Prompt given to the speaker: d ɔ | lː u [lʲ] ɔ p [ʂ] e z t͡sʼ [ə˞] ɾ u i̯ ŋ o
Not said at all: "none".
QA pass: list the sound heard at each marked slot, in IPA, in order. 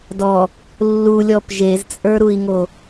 lʲ, ʒ, ə˞

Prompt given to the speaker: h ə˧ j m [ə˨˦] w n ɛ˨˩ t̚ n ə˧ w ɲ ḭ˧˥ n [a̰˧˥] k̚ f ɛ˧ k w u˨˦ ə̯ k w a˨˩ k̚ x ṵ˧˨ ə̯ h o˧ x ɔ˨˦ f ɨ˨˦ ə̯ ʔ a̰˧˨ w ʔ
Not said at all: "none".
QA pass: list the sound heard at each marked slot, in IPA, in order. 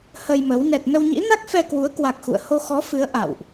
ə˨˦, a˦˥

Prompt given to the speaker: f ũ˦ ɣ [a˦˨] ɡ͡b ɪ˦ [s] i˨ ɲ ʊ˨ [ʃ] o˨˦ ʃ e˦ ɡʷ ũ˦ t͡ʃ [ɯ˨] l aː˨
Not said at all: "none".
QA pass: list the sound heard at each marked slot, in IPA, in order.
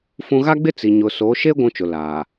a˦, t͡s, s, ʊ˨

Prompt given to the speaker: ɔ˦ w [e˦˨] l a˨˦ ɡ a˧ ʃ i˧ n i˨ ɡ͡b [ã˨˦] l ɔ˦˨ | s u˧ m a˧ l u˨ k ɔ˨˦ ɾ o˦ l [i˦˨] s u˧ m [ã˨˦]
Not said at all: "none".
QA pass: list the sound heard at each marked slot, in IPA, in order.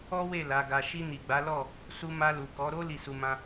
e˦˨, a˨˦, i˦˨, ã˦

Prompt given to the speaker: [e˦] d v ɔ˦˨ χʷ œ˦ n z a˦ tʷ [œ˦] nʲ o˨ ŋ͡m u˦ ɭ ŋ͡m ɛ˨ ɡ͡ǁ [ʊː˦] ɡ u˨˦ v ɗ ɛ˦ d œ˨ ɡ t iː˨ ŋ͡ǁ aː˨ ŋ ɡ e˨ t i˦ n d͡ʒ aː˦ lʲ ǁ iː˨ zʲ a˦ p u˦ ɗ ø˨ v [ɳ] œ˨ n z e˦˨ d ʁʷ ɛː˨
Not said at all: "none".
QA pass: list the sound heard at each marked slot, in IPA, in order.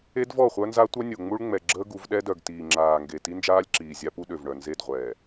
e˦, œ˦, əː˦, ɳ

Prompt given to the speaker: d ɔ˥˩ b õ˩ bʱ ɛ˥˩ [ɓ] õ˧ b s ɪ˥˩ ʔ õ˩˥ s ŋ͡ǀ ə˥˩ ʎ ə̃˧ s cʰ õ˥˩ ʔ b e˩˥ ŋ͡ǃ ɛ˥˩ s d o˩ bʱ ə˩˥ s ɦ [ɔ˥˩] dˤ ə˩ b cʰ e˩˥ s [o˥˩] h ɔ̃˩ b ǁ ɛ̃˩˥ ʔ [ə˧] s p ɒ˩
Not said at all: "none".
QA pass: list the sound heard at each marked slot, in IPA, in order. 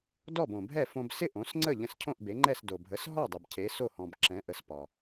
f, ɔ˥˩, o˥˩, ə˩˥

